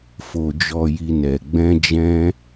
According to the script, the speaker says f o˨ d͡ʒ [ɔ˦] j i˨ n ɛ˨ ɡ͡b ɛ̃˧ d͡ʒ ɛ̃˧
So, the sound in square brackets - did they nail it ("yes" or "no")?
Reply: no